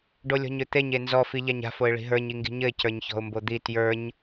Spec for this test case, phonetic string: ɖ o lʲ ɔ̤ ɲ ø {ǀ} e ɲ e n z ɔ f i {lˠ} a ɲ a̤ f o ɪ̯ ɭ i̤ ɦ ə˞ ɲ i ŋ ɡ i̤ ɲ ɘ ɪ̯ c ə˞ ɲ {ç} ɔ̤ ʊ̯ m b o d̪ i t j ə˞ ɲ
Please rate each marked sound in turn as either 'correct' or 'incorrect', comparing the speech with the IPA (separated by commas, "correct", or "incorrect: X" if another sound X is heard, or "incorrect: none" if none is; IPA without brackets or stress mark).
incorrect: t̪, incorrect: ʎ, correct